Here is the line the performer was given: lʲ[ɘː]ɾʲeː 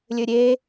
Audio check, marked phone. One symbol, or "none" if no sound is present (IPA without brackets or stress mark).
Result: ɘː